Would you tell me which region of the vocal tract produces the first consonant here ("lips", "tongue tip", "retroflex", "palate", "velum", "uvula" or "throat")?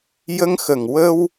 palate